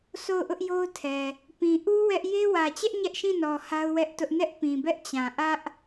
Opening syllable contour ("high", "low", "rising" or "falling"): falling